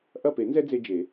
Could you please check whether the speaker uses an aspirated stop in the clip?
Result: no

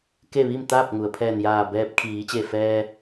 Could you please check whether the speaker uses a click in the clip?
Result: no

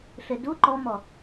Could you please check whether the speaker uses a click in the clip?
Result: yes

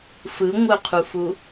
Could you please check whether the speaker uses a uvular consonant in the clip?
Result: yes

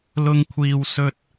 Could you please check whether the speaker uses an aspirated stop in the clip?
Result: yes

